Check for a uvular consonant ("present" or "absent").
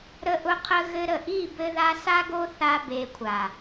present